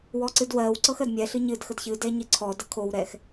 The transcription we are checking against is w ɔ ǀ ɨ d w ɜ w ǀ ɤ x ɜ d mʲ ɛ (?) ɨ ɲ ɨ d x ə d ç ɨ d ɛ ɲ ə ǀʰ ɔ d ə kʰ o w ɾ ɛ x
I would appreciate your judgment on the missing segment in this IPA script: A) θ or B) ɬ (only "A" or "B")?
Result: B